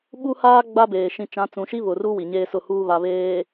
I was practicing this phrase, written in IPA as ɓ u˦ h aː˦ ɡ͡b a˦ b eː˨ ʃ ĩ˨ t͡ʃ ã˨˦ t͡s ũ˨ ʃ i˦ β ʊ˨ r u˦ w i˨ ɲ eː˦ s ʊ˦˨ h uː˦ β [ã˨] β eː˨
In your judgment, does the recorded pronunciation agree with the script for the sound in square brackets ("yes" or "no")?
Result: no